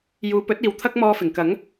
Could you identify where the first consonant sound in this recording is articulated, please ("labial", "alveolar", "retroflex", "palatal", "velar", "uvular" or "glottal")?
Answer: palatal